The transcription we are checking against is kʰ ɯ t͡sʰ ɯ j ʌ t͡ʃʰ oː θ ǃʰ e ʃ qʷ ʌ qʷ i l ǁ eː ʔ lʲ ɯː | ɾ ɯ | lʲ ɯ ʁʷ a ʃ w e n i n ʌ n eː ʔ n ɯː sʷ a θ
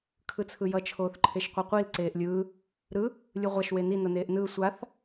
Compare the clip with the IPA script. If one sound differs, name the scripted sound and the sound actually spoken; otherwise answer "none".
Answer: ǁ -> ǀ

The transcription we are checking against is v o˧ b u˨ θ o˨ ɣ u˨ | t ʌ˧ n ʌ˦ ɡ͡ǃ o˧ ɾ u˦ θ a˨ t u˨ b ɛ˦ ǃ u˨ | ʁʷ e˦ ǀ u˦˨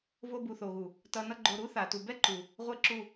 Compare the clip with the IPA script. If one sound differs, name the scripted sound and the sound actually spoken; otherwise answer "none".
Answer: ǀ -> ǁ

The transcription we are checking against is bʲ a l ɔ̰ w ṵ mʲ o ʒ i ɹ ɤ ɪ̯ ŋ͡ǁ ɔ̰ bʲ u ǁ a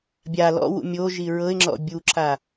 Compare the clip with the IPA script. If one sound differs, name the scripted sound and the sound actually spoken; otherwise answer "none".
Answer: none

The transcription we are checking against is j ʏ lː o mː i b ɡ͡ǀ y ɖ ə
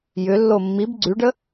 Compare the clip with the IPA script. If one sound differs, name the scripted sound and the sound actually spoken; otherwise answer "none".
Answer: none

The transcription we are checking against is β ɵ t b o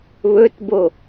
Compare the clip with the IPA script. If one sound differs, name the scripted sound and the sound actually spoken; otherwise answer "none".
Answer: none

